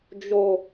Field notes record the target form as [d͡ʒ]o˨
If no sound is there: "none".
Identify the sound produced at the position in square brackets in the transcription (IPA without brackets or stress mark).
d͡ʒ